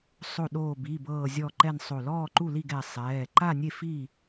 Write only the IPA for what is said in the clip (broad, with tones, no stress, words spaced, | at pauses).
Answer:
sˤo˧˩ɗoː˧˩bi˩˧˩bɤː˧˩ zʲɔ˧˩ǃɛ˧˩n sˤo˧˩lɔː˥˩ǃu˥˩li˥˩ɡ ɛ˧˩ sˤɛː˩˧˩ ǃa˥˩nʲe˥˩ fi˥˩